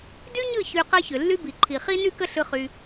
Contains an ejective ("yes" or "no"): no